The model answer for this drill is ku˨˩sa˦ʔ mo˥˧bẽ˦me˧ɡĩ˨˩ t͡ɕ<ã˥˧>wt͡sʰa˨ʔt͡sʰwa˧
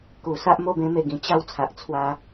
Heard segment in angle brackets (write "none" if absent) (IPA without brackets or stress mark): a˥˧